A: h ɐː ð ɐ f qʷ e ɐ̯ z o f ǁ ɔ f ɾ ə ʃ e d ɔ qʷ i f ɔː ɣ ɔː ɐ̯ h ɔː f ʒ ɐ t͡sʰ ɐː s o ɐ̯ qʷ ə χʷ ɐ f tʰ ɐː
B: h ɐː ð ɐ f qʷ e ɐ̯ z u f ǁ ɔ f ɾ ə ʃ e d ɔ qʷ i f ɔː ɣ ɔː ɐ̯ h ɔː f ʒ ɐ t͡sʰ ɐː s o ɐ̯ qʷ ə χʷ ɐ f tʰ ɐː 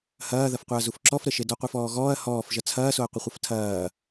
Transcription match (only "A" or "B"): B